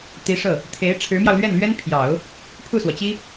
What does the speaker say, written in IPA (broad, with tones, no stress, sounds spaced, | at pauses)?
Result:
t̪ i˧˥ ʂ ɤ˥˩ | t̪ʰ e˧˥ ɪ̯ ʈ͡ʂʰ ɻ̩˧˥ m j ɑ˧ ʊ̯ l ɥ ɛ˥˩ n l ɥ ɛ˥ n pʰ j ɑ˨˩˦ ʊ̯ | pʰ u˥˩ s w ɔ˩ t͡ɕ i˥